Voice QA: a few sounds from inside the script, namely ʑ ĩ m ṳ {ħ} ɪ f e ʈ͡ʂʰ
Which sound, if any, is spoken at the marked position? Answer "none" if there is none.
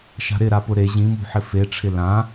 ħ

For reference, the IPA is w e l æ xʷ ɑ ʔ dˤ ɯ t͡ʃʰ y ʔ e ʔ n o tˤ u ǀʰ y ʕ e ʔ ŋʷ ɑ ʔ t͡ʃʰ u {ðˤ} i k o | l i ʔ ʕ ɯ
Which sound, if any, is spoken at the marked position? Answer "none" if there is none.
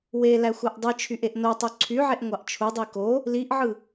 dˤ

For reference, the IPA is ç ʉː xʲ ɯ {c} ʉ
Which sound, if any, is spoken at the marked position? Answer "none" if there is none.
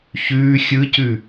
c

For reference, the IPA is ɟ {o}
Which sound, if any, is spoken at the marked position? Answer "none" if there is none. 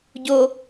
o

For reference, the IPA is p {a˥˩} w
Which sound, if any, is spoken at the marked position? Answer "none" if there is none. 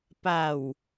a˨˩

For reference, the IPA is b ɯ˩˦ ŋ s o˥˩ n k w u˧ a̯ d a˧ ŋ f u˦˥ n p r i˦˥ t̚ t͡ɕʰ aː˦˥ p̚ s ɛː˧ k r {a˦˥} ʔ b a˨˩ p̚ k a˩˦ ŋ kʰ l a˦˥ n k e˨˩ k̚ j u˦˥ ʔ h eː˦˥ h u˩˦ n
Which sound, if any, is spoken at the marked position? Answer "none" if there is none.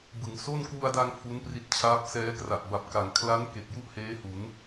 a˨˩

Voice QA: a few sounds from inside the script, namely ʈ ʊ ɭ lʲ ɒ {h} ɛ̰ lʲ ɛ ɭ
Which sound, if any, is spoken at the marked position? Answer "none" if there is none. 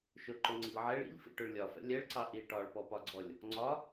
f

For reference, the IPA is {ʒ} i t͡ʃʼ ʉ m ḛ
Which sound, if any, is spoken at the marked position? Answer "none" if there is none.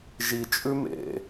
ʒ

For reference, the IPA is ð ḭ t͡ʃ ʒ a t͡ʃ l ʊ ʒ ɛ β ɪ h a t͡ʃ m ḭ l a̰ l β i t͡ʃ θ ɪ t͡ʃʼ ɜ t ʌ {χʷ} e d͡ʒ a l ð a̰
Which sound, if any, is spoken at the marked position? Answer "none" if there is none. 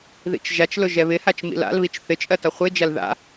χʷ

